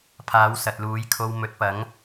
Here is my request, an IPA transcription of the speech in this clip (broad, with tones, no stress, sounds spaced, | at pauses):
pʰ aː˨˥ w s ɐ˨ t̚ l uː˨˥ j kʰ o˧ w m ɵ˨˥ t̚ p ɐ˨˥ ŋ